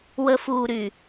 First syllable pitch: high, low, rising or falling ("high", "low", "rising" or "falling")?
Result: low